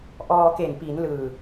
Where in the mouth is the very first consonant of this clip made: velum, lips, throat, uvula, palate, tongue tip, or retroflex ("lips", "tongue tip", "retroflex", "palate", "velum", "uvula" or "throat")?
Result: throat